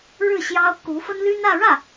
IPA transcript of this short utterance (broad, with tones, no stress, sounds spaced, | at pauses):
ɻ ɻ̩˥˩ ɕ j ɑ˥ ʊ̯ k u˧˥ f ə˥ n l y˥ n ä˥˧ ɻ ä˥˩